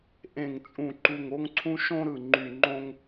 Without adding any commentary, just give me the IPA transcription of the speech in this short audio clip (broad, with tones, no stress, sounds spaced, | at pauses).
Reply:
ʔ ẽ˧˩ ŋ t͡sʼ ũ˧˩ ǃ u˧˩ ŋ o˥ ŋ ǀʰ ũ˥ ʃ õ˥ ɾ ɯ˧˩ ŋ͡ǃ y˧˩ ŋ͡ǃ õ˥ ŋ